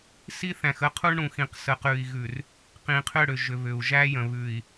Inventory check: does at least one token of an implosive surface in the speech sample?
no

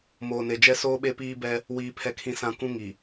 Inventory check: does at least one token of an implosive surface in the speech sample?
yes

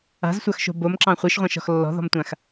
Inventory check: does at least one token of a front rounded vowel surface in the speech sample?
no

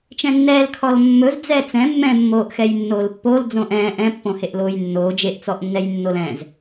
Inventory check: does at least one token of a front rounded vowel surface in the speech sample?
no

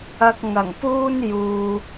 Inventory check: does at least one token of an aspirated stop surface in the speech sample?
no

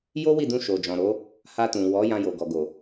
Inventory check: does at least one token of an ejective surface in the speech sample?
no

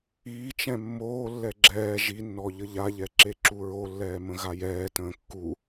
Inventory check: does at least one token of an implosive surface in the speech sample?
no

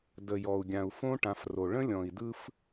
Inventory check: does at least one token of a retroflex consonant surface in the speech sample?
yes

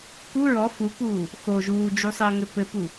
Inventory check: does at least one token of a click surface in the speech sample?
no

